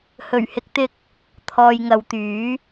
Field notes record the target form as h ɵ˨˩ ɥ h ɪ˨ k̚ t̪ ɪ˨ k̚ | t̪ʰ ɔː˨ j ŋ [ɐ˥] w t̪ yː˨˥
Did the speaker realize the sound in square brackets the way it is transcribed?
no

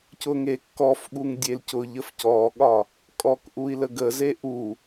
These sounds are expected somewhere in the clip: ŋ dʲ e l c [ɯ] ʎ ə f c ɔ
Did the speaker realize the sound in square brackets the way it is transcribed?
no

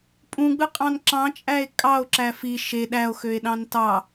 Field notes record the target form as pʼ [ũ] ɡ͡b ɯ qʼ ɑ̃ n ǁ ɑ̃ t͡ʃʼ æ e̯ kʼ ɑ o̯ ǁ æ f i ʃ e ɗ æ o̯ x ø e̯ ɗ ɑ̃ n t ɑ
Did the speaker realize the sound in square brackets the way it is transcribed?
yes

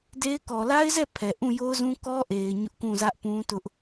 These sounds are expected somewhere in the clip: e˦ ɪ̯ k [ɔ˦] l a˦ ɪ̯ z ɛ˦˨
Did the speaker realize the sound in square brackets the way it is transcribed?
no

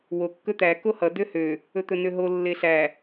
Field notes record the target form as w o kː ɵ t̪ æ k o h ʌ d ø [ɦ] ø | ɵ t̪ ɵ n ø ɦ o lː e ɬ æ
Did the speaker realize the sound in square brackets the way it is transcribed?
no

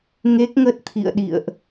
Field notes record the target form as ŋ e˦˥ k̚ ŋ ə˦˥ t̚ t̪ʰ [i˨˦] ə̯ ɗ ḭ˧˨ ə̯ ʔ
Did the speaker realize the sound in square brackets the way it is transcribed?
no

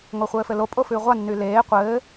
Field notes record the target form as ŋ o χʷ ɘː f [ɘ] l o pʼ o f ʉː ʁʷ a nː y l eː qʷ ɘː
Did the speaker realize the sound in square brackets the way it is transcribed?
yes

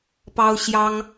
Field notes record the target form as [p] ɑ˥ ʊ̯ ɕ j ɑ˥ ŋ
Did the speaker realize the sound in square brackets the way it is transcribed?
yes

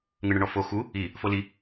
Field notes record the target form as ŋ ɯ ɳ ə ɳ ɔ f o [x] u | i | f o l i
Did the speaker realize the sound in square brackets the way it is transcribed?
yes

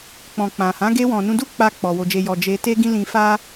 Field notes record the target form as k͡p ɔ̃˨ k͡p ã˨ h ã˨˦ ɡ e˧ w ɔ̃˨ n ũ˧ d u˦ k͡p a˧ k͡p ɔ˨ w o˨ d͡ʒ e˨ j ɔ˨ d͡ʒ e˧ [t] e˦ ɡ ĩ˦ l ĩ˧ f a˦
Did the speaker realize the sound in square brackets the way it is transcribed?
yes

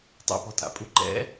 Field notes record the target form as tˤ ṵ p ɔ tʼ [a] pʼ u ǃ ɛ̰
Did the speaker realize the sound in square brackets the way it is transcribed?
no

